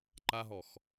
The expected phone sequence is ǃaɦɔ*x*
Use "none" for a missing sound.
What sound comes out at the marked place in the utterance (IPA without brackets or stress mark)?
x